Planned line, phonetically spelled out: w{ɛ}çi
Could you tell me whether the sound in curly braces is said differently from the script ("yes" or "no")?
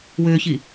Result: yes